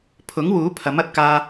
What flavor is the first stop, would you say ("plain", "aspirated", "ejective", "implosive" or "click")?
aspirated